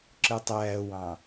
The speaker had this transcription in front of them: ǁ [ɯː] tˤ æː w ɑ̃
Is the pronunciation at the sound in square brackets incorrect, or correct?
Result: incorrect